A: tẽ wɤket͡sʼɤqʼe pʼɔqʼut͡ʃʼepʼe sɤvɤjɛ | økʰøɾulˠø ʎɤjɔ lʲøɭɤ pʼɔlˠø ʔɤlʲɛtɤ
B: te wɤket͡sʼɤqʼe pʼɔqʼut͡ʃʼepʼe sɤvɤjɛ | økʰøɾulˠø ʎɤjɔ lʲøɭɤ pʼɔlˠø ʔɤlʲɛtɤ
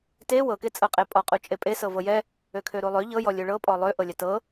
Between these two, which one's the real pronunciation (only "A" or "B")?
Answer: B